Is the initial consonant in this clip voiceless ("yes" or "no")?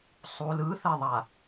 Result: yes